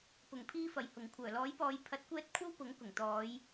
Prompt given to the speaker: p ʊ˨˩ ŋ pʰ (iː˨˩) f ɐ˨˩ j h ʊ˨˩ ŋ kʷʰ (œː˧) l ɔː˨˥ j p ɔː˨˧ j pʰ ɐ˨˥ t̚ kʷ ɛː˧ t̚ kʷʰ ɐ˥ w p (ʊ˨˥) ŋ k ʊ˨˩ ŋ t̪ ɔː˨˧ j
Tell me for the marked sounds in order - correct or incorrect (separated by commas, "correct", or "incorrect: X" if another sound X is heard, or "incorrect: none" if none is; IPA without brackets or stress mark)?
incorrect: iː˧, incorrect: œː˨˩, correct